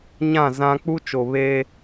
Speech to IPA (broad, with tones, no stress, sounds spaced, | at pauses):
ɲ ã˦˨ z ã˦ k͡p u˦ t͡ʃ o˨ β eː˦